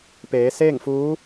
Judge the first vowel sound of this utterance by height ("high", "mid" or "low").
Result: mid